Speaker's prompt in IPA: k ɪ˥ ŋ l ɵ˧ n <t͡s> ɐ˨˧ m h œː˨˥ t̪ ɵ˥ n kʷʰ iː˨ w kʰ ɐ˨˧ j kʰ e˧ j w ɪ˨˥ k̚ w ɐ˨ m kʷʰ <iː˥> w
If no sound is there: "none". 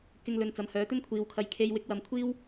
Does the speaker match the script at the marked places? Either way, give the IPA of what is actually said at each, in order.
t͡s, iː˥

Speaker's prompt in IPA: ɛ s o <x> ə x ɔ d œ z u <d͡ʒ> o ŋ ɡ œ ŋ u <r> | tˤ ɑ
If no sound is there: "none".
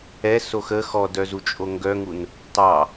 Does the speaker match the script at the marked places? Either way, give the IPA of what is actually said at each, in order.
x, t͡ʃʼ, n

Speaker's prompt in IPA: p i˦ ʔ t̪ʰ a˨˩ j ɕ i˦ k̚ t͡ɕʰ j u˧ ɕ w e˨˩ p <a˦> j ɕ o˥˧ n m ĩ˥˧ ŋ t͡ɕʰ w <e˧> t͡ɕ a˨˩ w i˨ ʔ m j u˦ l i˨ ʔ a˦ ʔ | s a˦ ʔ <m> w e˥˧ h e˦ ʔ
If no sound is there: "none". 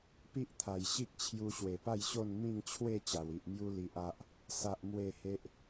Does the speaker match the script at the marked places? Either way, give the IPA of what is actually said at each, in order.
a˥˧, e˥˧, m

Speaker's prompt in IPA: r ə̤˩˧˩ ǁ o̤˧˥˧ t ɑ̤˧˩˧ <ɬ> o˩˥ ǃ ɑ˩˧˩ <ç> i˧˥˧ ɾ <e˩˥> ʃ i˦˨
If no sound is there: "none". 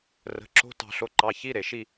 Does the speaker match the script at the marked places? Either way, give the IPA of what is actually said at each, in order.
ɬ, ç, e˩

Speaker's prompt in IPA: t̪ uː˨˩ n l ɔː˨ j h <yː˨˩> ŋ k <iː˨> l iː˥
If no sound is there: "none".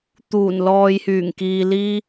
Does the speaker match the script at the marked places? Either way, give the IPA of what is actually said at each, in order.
yː˨˩, iː˨

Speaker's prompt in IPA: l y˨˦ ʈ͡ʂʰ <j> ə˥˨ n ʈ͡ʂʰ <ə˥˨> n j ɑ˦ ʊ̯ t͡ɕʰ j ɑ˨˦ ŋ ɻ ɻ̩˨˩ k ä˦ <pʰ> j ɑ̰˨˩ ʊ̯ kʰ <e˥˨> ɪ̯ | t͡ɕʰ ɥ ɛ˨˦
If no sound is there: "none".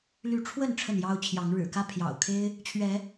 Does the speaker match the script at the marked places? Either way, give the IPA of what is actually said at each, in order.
w, ə˥˨, pʰ, e˦

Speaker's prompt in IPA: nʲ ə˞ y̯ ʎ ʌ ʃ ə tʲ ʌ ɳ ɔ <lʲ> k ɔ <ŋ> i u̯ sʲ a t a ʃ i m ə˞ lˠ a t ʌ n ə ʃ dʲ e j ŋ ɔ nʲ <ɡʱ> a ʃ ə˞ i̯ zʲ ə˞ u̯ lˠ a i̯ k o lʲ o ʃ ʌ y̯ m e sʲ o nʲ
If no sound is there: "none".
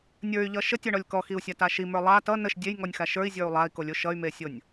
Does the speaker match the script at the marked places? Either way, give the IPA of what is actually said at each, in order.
lʲ, x, x

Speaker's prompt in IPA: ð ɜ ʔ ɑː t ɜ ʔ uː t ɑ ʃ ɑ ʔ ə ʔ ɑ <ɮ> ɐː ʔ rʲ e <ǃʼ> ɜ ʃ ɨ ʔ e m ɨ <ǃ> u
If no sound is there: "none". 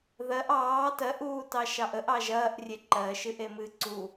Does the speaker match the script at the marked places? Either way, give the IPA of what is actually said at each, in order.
ʒ, ǃ, ǀ

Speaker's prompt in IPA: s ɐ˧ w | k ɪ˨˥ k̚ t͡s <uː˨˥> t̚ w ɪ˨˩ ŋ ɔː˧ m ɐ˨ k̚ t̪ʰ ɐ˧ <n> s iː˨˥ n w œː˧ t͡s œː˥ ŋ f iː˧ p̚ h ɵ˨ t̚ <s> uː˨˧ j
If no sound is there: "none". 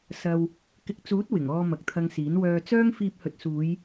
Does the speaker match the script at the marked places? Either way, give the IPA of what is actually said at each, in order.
uː˨˥, ŋ, s

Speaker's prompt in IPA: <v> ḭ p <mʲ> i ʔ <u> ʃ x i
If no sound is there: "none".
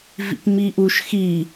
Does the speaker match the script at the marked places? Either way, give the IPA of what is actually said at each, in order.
v, m, u

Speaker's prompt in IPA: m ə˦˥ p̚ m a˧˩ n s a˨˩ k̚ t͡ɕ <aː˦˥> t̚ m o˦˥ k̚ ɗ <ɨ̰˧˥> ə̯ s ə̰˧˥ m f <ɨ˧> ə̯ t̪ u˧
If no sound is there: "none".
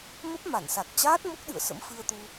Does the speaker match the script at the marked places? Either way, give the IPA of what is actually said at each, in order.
aː˦˥, ɨ̰˧˨, ɨ˧

